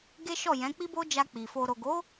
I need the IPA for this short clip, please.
ɡ e˦ ʃ ɔ˦˨ j ɛ̃˨˦ k͡p i˦ b o˦ d͡ʒ a˧ k͡p i˨ f o˨ ɾ o˨ ɡ o˨˦

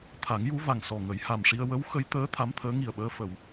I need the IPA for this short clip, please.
t̪ʰ a˨˩˦ ŋ j u˧˥ v a˨˩ ŋ s ɔ˨˩ ŋ ə˨˩˦ j h a˨˩ m ʂ i˧ ə̯ w ə˧˥ w x ə˧˥ j t̪ əː˧˥ t̪ʰ a˧˥ m t̪ʰ əː˧˥ ŋ i˨˩ ə̯ ɓ əː˧ f ə˨˩˨ w

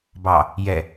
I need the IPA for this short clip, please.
b ɑ | j ɛ

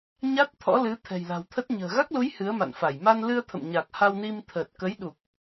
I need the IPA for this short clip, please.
ɲ a˦˥ t̚ t̪ʰ ɔ̰˧˥ l ɨ˨˦ t̪ʰ ɛ̤˨˩ j l a̤˨˩ w t̪ʰ ə˦˥ t̚ ɲ ə̤ː˨˩ ɣ a˦˥ k̚ l u˨˦ j h ɨ˨˦ ə̯ m a̰˧˨ n f a˧˩ j m a˧ n l ɨ˧ ə̯ t̪ʰ ə̰˧˨ m ɲ a˨˩ k̚ h a˧ w n i˧ m t̪ʰ əː˨˩ t̚ k ə˨˦ j ɗ u˨˩ k̚

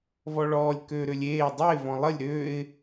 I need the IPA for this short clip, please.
v ɔ ɭ ɔː lʲ k øː ɾ ø lʲ eː dˤ ə ɪ̯ v ɔ̃ lˠ ə lʲ ɾ ø ɪ̯

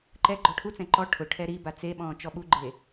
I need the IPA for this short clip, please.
ǃ ɛ ɡ͡ǃ ɔ ʈʰ u t͡s ɛ̃ ǃ ɔ ʈʰ ʊ ʈʰ ɛ ɾ i b a t͡s e ɓ ɔ̃ː t͡ʃ ɔ ɓ u ɡ͡ǃ e

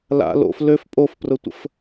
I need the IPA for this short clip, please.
l a̰ l o̰ f l ø f pʼ o f p r ʊ tʷ ə̰ f

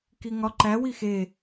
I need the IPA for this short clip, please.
k i ŋ ɒ ǃ æ w i x e

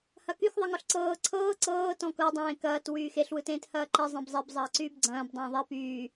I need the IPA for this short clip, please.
h ɐ k y x ðˤ ɯ ŋ ɔ ɬ ǀ ɤː ǀʰ ɤː ǀ ɤː t ɔ̃ k ɤ dˤ ẽː k ɐː t w yː x e ɬ w ɯ t ẽː t h ɐː ǃ ɛ zˤ ẽ b zˤ e b zˤ ɐː ǀ yː b ɡ͡ǀ ɐ̃ː b dˤ ẽː ðˤ e p yː

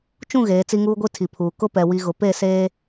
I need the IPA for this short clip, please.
t͡ʃ ũ˦˨ ɣ eː˨˦ t͡s i˦ ŋ uː˦ ɡʷ i˦ tʰ i˨ pʰ uː˨ k ʊ˦ p ɛ˨ w i˨ ɣ ʊ˨ p e˦˨ s eː˦

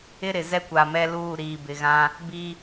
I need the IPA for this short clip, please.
ɪ˦ ɾ ɪ˨ z ɛ˦ kʷ a˨ m ɛ˦ l uː˦˨ ɾ iː˨ b ɪ˨ ɣ ã˦ | b i˦

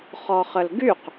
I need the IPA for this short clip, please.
χ ɔ χ ə l ɡ y q

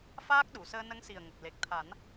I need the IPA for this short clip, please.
f aː˦˥ k̚ ɗ u˨˩˨ s əː˧ n ə˧˥ ŋ s i˨˩ ə̯ ŋ ə˨˩ k̚ l e˨˩ k̚ t̪ʰ a˨˩˦ n

